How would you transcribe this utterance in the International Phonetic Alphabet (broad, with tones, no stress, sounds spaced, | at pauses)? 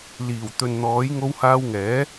l iː˨˩ w t̪ ɵ˨ n n̪ ɔː˨˥ j ŋ o˧ w h aː˧ w ŋ ɛː˨˥